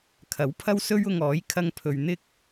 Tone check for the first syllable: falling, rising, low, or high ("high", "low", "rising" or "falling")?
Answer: rising